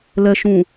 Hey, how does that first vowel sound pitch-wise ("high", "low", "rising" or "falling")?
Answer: low